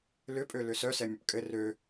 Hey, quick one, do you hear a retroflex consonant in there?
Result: no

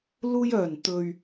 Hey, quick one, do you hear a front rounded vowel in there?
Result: yes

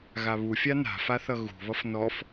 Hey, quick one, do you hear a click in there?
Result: no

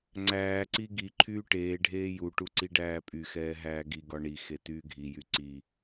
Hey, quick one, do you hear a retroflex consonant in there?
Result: yes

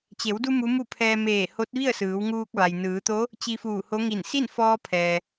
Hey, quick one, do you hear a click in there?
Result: no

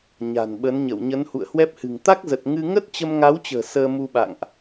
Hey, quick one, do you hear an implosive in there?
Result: yes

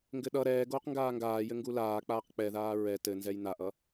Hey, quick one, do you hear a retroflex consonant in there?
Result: no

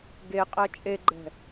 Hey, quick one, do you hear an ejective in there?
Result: yes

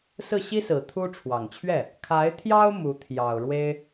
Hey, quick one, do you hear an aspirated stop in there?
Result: yes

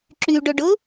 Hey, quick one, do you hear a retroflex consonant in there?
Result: yes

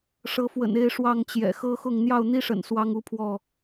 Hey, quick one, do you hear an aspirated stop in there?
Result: yes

